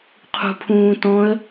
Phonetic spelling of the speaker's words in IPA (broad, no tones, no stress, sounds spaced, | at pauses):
qʰ ṳ pʰ ũː t ɔ̃ ə̯